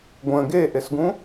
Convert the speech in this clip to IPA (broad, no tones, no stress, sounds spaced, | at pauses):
ɡʷ ə̃ ɡ e ʔ e s ɡ ũ